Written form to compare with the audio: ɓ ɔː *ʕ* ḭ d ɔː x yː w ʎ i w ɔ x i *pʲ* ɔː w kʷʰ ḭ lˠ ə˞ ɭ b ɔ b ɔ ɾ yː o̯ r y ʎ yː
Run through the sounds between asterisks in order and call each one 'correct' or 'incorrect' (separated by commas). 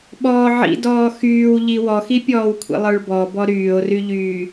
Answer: correct, correct